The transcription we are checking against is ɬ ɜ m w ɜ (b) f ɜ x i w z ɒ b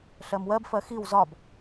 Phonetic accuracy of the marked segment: correct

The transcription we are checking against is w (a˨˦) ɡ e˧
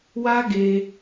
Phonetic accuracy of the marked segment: incorrect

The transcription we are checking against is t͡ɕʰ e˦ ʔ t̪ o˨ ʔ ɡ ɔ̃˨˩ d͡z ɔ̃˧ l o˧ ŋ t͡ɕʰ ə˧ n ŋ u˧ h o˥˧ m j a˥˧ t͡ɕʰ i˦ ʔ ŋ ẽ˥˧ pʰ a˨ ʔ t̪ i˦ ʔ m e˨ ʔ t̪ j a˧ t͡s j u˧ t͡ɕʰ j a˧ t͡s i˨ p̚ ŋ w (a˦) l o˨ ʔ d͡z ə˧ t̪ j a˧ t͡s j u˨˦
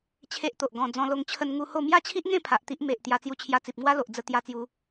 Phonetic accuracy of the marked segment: correct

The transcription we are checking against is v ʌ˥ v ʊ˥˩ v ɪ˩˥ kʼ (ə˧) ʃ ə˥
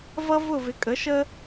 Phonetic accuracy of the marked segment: incorrect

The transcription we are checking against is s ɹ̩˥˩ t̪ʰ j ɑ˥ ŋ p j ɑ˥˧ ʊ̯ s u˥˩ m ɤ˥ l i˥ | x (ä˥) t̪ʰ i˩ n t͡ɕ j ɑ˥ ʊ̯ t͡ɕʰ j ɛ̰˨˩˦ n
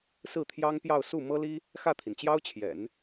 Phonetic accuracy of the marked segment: incorrect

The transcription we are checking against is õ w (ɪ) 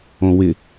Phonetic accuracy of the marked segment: correct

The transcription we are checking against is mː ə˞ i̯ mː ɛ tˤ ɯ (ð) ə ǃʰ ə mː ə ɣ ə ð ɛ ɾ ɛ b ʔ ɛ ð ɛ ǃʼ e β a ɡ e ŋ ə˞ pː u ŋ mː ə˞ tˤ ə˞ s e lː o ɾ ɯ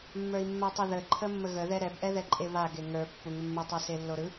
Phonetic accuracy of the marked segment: correct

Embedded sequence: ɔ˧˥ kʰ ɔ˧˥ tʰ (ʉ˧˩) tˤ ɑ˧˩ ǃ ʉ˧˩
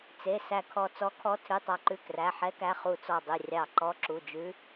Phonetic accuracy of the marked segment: incorrect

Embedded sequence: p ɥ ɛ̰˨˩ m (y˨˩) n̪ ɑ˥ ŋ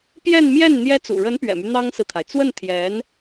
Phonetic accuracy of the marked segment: incorrect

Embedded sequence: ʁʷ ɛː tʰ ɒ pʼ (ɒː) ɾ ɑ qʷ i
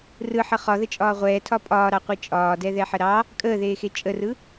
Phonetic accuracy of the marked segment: correct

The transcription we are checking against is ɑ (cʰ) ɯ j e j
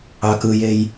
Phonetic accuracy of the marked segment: incorrect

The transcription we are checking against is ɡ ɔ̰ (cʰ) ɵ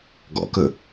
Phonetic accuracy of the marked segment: incorrect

